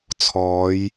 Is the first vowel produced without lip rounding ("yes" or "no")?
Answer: no